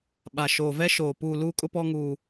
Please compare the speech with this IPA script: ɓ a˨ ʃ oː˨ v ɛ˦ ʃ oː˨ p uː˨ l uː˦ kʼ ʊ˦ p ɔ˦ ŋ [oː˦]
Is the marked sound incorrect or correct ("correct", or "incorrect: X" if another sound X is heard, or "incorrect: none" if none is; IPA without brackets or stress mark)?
incorrect: uː˦